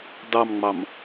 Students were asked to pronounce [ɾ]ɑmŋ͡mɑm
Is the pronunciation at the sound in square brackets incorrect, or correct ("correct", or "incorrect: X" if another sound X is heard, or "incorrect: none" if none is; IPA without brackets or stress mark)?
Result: incorrect: d